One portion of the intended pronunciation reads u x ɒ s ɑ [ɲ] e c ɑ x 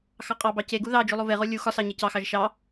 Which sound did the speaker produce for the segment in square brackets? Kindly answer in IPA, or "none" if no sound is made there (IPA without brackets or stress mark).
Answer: ɲ